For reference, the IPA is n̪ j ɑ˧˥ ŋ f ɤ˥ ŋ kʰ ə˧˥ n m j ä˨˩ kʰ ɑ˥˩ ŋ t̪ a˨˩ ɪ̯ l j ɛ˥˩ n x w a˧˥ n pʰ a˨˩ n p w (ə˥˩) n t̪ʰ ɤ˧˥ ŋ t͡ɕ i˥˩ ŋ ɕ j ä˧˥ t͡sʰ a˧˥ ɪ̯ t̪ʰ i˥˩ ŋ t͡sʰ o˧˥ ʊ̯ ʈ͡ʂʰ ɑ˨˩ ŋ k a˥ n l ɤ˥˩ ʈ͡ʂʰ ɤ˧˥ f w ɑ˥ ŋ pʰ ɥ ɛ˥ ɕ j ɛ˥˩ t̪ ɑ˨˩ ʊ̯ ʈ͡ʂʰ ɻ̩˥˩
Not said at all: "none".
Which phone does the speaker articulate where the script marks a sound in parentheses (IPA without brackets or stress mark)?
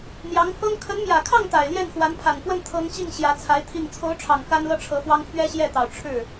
ə˥˩